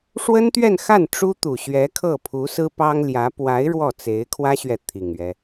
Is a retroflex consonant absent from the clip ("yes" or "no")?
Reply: no